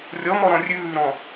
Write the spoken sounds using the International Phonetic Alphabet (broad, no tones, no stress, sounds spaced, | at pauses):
rʲ ɔ m ɔ ɾ ɔ̃ rʲ ʉː ɾ ɔ̃